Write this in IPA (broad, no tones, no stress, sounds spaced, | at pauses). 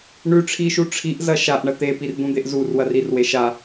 ɳ ʉ ʈ͡ʂʰ i ʃ u ʈ͡ʂʰ i ʔ z ɐ ʃ a ʔ ɳ ɐ t̪ e p i r d̪ ũ d̪ e ʔ z u r w ɐ r i r w e ʃ a